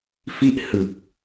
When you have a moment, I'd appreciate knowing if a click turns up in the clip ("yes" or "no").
no